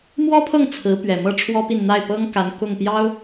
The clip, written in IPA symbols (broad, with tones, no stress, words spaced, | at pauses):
mwɔ˥pʰɤ˥˩ŋ t͡sʰɹ̩˧˥pɥɛ˨˩ mɤ˥˩ʈ͡ʂʰwɔ˥pi˥˧n n̪a˥˩ɪ̯pɤ˥ŋka˧˥n kʊ˥˩ŋ pjɑ˥ʊ̯